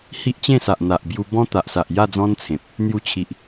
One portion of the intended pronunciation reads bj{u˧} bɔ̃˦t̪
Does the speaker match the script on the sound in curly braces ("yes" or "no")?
yes